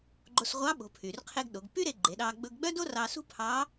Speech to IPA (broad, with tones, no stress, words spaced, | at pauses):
ɡ͡ǃo˧sʁʷɑ˧˥ɓo̤˩˧ pʰy˩rqʰe˧ɡ ɗo˩˧ɡpy˥ɾe˧ ɡ͡ǃe˩˧ɗɑ˧ ɡ͡bɵ˧ɡɡ͡bœ˥do˥ rɑ˧sṳ˥pʰɑ˧˥